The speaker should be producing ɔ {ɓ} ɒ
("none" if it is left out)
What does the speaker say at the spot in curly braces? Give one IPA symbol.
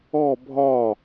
bʱ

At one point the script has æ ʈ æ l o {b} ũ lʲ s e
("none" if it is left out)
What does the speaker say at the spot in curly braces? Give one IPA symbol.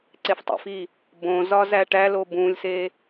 b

